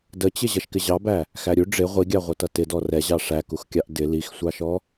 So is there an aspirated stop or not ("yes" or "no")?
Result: no